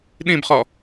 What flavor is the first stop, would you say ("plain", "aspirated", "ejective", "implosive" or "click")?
implosive